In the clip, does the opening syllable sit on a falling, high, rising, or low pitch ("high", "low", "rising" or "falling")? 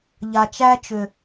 low